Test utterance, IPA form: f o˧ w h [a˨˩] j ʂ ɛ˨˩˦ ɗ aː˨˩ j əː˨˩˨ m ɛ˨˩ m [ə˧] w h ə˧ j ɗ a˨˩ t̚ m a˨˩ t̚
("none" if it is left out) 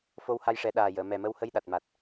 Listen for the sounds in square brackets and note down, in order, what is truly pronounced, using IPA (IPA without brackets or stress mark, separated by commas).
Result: a˧, ə˧